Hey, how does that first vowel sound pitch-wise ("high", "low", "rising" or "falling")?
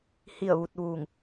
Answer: falling